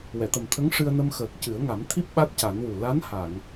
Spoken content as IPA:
wɛ˨˩˨t̪ə˨˩mt̪ʰə˧˥ŋ ʂɨ˧ə̯nə˧mxəː˨˩k̚ cɨ˨˩˦ə̯ŋa˨˩˦mt̪ʰi˦˥p̚ ɓa˦˥t̚ca˨˩˦nwu˨˩ la˧˥nha˨˩˨ŋ

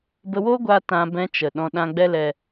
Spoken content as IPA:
bə˧wo˦ɡʷa˧ tã˧bɛ̃˧t͡ʃə˨ ɗɔ̃˧ɗã˧ɡ͡bɛ˦lɛ˧

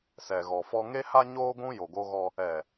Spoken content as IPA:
sɛ˨ɣɔ˨fɔ˦ ŋe˦ha˦ɲoː˦ ɡʷũ˦ jo˨ɡo˦ɣɔ˦ | ɛ˨

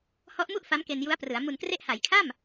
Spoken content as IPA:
hɔ˦˥ʔmu˥˩ʔ fa˦˥mke˧nju˦˥a̯prɯ˩˦a̯ mu˨˩nkre˦˥ʔha˩˦jkʰa˥˩m

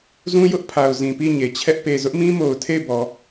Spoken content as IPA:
zũ˦jʊ˦ʔ pʰa˨ʊ̯ zĩ˨pi˦˨ɲe˨t͡ɕʰɛ˦ʔ pe˨zʊ˦ʔmĩ˦ mo˨ʊ̯ tʰe˦˨ɪ̯ bɔ˨

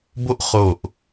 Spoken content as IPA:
bo˥ʔ χo˧˩ʔ

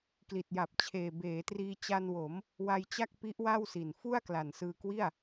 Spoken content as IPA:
kli˨˩t̚ja˨˩p̚ t͡ɕʰeː˨˩beː˩˦triː˧ t͡ɕa˧nwo˩˦m | wa˧jt͡ɕa˥˩k̚ pi˦˥ʔwa˥˩wsi˨˩n fu˥˩a̯kla˨˩nsɯː˧ kwi˥˩a̯

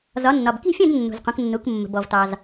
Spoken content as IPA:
zɒ˩˧nːɒ˩b ki̤˥˧fʲɐ̃˥˧d nːṳ˩zqʷə̃˩˧knːu˩˧k mːə̤˩bɔ˩vtɑ˩z

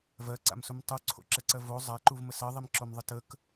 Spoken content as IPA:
vɜǀa̰msum tˤuǀʰo̰ǁɛǀɜ vo zˤaǃuvmə sɜðˤimǁomðˤə tək

